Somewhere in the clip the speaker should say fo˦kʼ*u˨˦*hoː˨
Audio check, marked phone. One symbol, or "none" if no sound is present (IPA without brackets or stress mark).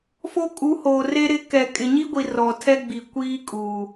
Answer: u˨˦